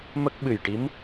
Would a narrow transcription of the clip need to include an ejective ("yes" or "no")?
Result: no